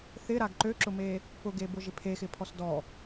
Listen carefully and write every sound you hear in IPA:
θɪɾaɡ ǃøǁʊme | pʊɡebʊʒɪ pʰexɪpʰɔs dɔ

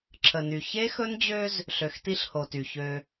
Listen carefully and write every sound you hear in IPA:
ǁʰə˨ny˨ çe˦xɵ˦nd͡ʑø˦z | ɬø˨xti˦ɬho˨ty˨ çø˦

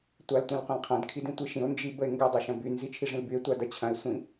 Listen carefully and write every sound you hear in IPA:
tʷaltʷɐ̃lqʷɐ̃lqʰɐ̃d kʰidĩtʷiʃĩo̯ nd͡ʒibəe̯ŋɡɐ dˤaʃɐ̃by nzit͡ʃʰiʐĩlbye̯ tʷadɐt͡ɕʰɐ̃e̯ sʷĩ

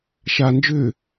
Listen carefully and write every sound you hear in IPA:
ʃa nd͡ʒʏː

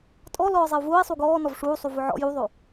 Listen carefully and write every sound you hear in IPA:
tʼɔ lɔːzˤeu̯vʊːi̯ sˤuɡɔː nɔvʂuː sˤuvʊʕɔ̰ juðˤo

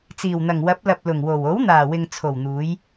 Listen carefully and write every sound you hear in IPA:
t͡siː˨˩wn̪ɐ˨˩ŋ wɐ˨˥p̚lɐ˨p̚ lʊ˨˩ŋwo˨˩w o˨˥wn̪aː˨˩wɪ˨ŋ t͡sʰo˨˩wn̪uː˨˧j

